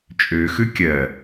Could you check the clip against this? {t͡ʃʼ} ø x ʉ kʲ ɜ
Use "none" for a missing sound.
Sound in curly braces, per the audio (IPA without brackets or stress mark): t͡ʃʼ